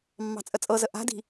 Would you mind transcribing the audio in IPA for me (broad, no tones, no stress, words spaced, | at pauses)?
mːɑ̤t͡sʼət͡sʼɤzə ʔa̤di̤